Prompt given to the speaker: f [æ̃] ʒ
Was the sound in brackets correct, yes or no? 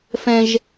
no